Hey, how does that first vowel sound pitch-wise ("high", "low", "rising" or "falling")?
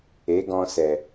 rising